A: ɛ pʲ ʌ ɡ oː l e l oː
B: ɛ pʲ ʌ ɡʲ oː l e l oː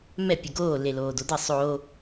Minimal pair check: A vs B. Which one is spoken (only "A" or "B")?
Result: A